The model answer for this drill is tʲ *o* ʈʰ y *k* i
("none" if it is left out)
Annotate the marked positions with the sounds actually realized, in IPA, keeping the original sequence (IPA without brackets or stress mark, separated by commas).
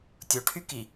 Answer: o, k